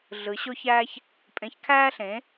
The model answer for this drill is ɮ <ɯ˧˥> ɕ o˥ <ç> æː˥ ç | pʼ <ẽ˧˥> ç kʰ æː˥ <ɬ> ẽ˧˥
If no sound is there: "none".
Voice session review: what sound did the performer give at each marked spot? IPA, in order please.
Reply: ɯ˧˥, ç, ẽ˧˥, ɬ

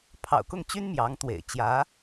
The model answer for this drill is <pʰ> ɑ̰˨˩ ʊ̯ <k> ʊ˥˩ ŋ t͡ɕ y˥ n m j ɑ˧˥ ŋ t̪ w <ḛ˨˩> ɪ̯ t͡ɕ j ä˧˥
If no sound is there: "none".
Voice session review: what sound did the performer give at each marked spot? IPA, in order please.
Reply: pʰ, k, ḛ˨˩

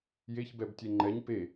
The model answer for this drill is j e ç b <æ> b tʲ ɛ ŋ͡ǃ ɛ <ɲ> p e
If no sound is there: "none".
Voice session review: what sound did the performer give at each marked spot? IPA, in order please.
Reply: ɛ, ɲ

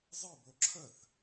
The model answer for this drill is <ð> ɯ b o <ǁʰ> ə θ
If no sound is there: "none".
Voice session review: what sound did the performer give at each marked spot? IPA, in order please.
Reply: zˤ, ǁʰ

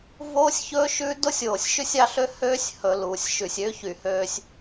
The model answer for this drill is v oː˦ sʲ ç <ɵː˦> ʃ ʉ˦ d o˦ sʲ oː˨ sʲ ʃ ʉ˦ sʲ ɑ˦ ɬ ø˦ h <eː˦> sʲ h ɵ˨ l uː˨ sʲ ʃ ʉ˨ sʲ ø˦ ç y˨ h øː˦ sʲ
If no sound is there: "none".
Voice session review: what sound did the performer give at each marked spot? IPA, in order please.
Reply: ɵː˦, øː˦

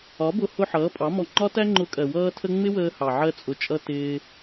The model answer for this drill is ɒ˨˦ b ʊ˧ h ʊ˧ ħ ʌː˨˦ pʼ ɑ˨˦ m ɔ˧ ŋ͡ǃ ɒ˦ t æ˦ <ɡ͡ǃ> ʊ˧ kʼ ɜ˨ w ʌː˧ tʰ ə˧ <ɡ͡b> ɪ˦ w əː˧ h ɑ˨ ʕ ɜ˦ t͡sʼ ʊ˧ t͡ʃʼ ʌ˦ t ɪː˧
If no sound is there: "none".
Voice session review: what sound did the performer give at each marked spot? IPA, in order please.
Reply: ŋ͡ǃ, ŋ͡m

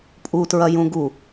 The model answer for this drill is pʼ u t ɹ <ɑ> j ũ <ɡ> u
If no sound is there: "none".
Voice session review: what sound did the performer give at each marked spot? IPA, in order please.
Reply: ɐ, ɡ

